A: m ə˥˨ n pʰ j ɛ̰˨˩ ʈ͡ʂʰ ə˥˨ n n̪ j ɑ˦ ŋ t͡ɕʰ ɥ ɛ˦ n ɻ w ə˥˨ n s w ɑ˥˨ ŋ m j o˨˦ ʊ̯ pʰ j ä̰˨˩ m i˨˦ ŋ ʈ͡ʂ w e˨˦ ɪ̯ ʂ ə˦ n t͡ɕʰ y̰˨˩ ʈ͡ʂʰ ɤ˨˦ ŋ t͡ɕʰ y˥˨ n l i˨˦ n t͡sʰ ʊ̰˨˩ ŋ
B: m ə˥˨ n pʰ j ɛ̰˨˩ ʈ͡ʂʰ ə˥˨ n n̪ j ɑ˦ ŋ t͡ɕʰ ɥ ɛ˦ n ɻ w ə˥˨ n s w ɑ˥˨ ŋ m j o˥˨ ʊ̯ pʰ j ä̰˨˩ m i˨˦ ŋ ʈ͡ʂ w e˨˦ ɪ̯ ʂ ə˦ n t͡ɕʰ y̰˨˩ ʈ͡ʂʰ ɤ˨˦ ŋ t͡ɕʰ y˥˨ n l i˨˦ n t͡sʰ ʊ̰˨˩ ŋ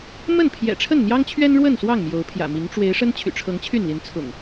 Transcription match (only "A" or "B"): A